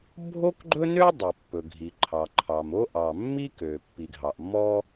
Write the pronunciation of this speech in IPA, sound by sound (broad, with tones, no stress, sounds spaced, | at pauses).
bʱ o˥ k ɡ͡ǃ ɵ˥ n ø˥ dˤ ɵ˩ pː ɵ˩ ɡʱ i˩ ǃʰ ɑ˩ ǃʰ ɑ˩ m o˥ ʔ ɑ˩ mː i˥ k ø˩ pː i˩ ɡʱ ɑ˩ ʔ mː ɔ˥